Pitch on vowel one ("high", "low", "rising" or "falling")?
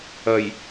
low